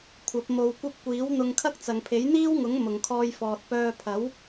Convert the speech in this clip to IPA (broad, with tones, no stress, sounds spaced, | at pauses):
kʷʰ ɐ˨˥ p̚ m o˧ w kʷ ɐ˥ p̚ kʷ iː˨˥ w n̪ ʊ˧ ŋ kʰ ɐ˥ k̚ t͡s ɐ˨ ŋ pʰ e˨˥ j n̪ iː˥ w ŋ ʊ˨˥ ŋ m ʊ˨ ŋ kʰ ɔː˧ j f ɔː˨ t̚ p œː˧ pʰ ɐ˨˥ w